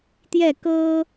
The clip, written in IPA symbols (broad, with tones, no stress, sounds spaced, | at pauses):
t̪ j ɛ˥˩ k ɤ˥